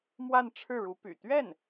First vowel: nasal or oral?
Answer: oral